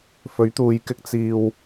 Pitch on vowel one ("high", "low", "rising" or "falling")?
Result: rising